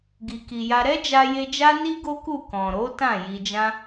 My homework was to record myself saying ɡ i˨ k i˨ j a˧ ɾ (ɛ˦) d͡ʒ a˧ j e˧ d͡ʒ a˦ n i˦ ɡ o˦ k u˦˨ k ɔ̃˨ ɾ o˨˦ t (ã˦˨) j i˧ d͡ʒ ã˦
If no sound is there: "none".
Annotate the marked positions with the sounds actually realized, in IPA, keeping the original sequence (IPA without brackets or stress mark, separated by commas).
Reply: ɛ˦, ã˦˨